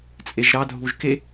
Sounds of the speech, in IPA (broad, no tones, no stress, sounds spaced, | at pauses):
t͡sʼ e ʒ ɾ ɑ dʱ u ʒ k e